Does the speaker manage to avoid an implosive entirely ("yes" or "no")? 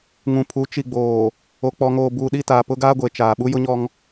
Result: no